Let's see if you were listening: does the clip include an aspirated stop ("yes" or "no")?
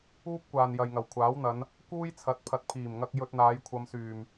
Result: yes